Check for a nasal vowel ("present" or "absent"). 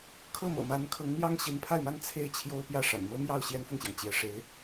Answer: absent